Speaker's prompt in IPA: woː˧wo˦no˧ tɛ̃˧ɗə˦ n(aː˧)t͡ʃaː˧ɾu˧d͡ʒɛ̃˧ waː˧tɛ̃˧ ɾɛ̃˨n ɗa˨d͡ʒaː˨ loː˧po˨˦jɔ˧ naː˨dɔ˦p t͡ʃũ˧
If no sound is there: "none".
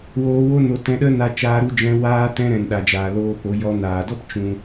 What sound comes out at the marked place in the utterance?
a˧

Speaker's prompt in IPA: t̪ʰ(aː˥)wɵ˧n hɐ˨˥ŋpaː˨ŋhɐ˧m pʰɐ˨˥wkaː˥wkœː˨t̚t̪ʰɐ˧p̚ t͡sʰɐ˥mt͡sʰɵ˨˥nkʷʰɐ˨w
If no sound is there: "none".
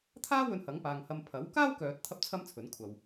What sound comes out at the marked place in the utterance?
aː˥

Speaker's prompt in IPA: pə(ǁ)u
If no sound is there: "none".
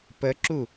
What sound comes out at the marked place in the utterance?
ǁ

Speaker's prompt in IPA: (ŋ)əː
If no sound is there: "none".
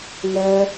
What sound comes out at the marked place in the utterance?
ŋ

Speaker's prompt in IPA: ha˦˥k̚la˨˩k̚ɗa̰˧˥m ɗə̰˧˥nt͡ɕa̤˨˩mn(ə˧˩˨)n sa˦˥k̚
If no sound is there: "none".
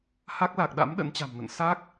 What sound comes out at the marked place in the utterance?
ə̰˧˨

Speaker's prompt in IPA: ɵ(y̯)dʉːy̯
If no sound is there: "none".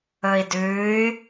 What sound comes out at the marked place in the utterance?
i̯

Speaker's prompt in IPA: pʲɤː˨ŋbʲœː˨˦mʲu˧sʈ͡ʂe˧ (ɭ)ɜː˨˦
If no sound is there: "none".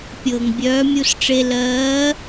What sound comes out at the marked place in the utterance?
l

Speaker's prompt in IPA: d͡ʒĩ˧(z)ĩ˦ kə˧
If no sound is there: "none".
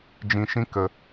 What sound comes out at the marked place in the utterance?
ʃ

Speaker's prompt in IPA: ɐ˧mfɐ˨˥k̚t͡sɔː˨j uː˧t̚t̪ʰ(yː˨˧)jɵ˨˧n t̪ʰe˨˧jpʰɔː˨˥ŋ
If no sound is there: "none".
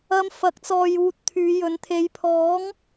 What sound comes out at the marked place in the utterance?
yː˨˧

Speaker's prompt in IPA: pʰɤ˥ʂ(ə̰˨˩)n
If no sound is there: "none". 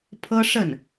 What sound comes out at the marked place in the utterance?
ə˥˩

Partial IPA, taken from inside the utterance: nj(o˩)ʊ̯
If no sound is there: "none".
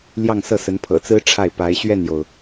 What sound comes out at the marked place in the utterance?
o˩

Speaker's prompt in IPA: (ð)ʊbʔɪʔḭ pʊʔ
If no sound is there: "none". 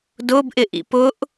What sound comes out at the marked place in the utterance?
d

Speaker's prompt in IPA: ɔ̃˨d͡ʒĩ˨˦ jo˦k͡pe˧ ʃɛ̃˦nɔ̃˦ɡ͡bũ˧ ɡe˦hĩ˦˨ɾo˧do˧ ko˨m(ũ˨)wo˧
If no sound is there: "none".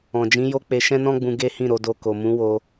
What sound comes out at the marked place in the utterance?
ũ˨˦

